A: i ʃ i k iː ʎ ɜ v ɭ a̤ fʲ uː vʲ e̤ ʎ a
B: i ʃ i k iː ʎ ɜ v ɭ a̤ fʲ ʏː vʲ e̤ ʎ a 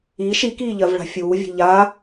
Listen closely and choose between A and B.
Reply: A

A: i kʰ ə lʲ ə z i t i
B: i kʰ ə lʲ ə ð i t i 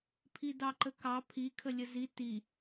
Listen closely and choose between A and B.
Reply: A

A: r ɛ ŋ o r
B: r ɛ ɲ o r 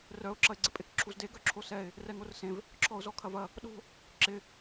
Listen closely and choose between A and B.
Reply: A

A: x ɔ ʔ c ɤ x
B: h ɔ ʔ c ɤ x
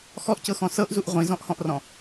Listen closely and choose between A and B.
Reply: A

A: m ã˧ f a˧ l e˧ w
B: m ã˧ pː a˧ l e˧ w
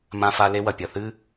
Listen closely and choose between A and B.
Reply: A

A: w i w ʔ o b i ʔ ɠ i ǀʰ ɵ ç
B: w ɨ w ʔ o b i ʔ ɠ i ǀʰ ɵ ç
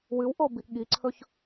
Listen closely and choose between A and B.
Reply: B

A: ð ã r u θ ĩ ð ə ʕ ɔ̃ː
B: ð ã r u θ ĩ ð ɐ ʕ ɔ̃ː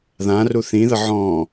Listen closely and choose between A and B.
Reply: A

